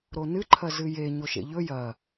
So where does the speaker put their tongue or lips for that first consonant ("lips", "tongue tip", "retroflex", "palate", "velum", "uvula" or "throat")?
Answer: tongue tip